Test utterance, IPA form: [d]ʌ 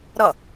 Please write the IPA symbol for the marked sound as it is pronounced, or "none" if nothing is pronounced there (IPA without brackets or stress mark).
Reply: ɾ